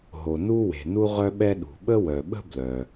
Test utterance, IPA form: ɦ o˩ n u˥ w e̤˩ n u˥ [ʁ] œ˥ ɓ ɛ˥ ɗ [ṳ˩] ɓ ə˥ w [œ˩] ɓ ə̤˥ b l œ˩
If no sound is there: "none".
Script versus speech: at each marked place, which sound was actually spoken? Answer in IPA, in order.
ʁ, ṳ˩, œ˩

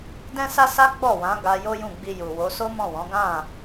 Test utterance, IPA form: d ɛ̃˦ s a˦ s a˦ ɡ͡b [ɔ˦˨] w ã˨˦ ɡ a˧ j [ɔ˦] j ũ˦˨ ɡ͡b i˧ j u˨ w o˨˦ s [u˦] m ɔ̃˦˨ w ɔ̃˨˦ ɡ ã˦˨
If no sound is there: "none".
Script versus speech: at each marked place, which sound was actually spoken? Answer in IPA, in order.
ɔ˦˨, o˦, o˦

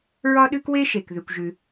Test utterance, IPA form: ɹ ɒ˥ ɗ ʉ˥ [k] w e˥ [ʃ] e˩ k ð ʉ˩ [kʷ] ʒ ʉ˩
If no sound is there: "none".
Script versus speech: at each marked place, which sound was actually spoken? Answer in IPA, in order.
k, ʃ, kʷ

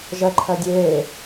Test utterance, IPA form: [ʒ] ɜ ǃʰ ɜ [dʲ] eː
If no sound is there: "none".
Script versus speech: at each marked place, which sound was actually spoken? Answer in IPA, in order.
ʒ, dʲ

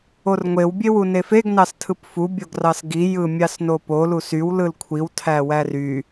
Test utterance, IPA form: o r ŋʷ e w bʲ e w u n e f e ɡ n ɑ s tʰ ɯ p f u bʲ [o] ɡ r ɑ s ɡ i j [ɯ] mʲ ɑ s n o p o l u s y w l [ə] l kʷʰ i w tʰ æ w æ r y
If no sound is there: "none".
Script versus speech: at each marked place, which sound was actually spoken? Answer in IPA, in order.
o, ɯ, ɯ

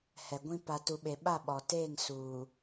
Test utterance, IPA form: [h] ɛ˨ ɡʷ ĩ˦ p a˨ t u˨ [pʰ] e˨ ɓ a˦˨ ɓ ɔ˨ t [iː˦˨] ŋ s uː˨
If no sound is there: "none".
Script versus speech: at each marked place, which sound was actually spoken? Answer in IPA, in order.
h, ɓ, eː˦˨

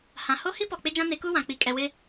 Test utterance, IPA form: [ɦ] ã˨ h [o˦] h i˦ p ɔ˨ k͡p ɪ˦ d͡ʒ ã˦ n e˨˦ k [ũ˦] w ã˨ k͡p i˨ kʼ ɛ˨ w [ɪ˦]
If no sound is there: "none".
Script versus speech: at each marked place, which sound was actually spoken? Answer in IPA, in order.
h, o˦, u˦, ɪ˦

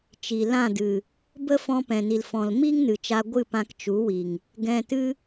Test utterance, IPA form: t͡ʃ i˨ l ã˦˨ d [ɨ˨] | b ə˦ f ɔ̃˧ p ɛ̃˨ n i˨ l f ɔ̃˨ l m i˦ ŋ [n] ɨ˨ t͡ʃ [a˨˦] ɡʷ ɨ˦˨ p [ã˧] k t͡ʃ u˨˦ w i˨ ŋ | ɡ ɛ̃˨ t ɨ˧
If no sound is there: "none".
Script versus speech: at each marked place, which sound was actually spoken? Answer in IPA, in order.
ɨ˨, n, a˧, ã˧

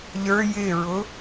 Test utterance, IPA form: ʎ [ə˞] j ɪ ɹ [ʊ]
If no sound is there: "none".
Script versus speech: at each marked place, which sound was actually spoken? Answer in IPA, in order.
ə˞, ʊ

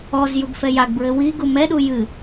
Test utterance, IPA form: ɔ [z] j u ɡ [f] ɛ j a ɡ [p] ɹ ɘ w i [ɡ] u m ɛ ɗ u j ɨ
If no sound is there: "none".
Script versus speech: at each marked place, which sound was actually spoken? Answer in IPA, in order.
z, f, b, ɡ

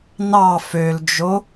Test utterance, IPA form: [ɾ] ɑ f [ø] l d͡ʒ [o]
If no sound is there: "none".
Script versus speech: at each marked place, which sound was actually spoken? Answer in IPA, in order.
n, ø, o

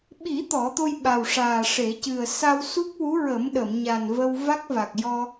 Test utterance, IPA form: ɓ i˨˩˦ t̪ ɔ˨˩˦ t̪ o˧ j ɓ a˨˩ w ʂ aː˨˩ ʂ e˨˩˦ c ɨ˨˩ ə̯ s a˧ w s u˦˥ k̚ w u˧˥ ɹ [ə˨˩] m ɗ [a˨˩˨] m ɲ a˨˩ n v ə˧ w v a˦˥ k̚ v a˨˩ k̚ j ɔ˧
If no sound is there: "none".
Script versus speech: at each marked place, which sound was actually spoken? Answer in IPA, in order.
ə˨˩˦, ə˨˩˨

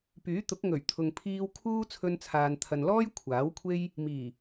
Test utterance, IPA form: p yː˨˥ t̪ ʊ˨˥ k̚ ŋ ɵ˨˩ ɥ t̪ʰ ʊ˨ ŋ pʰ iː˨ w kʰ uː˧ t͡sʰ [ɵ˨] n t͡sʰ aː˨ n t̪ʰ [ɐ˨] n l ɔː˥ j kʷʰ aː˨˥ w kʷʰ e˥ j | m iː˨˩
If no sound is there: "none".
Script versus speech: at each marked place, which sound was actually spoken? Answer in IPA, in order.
ɵ˧, ɐ˨

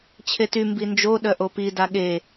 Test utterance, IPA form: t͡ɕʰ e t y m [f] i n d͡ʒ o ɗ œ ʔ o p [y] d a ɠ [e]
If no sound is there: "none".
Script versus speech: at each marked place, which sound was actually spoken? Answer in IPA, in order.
b, i, e

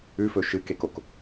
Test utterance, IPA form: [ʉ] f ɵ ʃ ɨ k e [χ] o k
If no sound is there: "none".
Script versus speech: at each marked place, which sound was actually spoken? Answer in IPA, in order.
ʉ, k

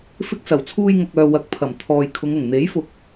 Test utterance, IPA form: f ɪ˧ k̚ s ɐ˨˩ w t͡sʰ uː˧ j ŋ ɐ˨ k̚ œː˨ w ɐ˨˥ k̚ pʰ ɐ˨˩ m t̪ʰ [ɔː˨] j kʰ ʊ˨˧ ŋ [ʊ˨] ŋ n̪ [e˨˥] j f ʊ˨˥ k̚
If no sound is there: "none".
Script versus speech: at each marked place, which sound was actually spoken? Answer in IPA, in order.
ɔː˨, ʊ˨˩, e˨˥

